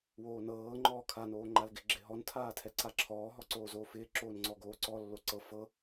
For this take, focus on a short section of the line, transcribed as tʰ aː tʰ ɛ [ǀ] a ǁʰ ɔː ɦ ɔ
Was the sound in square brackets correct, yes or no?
yes